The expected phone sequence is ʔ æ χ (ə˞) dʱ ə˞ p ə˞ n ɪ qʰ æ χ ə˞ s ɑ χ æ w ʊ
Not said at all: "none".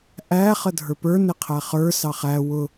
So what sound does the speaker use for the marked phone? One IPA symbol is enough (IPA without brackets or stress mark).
ə